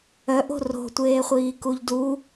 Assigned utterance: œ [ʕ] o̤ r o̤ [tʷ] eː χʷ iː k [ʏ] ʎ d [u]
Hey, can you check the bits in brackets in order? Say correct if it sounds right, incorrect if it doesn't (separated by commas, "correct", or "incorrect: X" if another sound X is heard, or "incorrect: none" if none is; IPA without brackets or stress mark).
incorrect: ʔ, correct, incorrect: u, correct